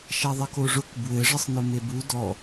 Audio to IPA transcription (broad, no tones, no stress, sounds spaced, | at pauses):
ʃ a ðˤ ʌ k o ʐ ʊ k b w ɘ ʐ ɘ sˤ n ʊ m e b u d ɔ